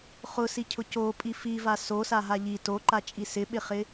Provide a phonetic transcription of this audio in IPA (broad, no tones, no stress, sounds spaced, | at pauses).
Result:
χ ʊ s i cʰ ʊ c o pʼ i f i v a s o s a ɦ a ʎ i t o ǃ a t͡ʃʼ i s ɪ ɓ ɪ χ ɪ